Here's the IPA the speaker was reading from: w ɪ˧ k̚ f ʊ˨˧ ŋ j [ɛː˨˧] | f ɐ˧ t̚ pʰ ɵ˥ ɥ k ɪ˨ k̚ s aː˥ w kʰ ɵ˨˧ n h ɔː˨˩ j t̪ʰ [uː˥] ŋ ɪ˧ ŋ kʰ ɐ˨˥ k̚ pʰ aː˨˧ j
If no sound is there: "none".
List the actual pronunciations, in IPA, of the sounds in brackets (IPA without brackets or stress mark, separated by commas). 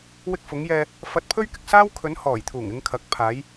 ɛː˧, uː˨˩